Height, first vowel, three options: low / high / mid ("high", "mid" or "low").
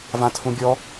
low